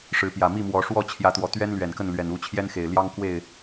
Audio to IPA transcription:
ʂɻ̩˨˦pjä˨˩mi˥˨mwɔ˨˦ ʂwɔ˥˨t͡ɕʰjä˨˦t̪wɔ˨˩t̪ɥɛ˦n lɥɛ˨˩nkə˥˨n lɥɛ˨˩nu˥˨t͡ɕʰjɛ˦nxe˨˩ɪ̯ ljɑ˦ŋkwe˥˨ɪ̯

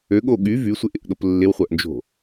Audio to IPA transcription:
øɠo ɠy vysʷɪʔɪʔɗop lːɪwχʷœʔnd͡ʒo̤

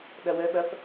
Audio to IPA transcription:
ɗɐwœɓɐf

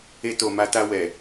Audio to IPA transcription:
e˧to˨ma˧ta˧ wɛ˨

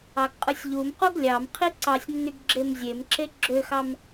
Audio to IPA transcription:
ɑɡqʼɯsʲʎumqoɡ lʲɑmqʰi ǀɑsʲnːyɡ ɡ͡ǁemzʲemǁe ɡ͡ǁøxɑm

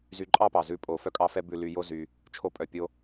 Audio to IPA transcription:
zy˧ǃʼɑ˦pɑ˨ zʉ˧pʼo˨ fœ˦kʼɑ˦fɛ˦ bʉ˧ly˧jo˦zy˧ | t͡ʃʰo˦pʼœ˧pʲo˦

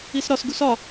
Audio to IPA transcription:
isɾɒsɡus ɒ

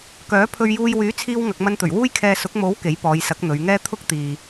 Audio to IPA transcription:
kœː˨˥pʰɵ˧ɥjuː˧j wyː˨˥t͡sʰiː˧w ŋɐ˨k̚mɐ˧nt̪ɵ˨˩ɥ wuː˥jkʰɛː˧sʊ˨˥k̚ mo˨˥w ke˨˥jpɔː˨˧jsɐ˨˥k̚ n̪ɵ˨˧ɥŋɛː˥ t̪ʰʊ˥k̚t̪iː˨

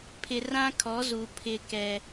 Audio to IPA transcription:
pʰɪ˨rã˦kʰɔ˨˦zu˨ pʰɪ˦kɛ˦

